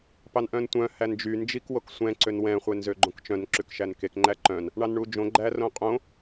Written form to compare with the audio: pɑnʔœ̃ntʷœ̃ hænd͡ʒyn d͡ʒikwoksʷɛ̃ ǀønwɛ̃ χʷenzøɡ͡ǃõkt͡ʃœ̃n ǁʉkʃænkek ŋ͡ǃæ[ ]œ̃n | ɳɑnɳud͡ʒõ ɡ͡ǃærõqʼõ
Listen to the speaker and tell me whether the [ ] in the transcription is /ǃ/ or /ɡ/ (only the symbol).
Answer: ǃ